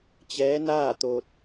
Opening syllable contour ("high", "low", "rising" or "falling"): rising